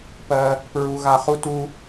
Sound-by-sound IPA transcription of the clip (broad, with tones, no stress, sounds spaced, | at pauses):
p ɜ˧ | p ɹ u˧ ɣ a˧ χ u˥ t u˥